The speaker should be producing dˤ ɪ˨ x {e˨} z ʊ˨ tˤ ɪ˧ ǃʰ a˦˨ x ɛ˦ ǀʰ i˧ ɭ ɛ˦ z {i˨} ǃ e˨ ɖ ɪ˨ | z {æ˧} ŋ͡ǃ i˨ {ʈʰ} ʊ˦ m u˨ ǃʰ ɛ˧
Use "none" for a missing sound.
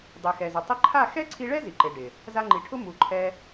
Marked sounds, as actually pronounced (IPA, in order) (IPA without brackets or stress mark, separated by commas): ɛ˨, i˨, a˧, ʈʰ